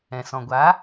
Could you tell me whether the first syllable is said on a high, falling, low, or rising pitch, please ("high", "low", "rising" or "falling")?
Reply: low